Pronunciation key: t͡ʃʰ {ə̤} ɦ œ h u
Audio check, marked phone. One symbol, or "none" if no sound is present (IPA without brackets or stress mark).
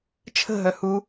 ə̤